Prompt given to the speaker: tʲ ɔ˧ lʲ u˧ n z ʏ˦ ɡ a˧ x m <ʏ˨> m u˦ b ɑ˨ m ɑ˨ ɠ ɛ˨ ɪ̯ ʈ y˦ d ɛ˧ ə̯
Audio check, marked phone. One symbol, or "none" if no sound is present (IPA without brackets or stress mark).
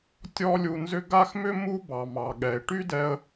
ʏ˧